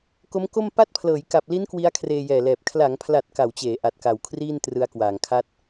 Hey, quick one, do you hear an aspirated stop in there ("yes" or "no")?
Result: yes